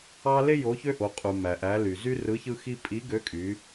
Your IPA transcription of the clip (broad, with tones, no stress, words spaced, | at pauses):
ɑ˦ le˦ jo˨˥çø˦ʔo˩˧ qʼu˩ mæ˩ʔæ˩˧ly˩ zy˦rɯ˨˥çɯ˦xi˦ pʼi˨˥ɡø˨˥kʼy˩˧